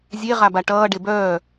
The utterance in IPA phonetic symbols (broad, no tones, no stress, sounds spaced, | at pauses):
zʲ e ʁ a b a ʈ ʌː ɖ e b œː